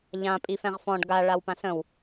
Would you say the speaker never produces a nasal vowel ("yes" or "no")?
no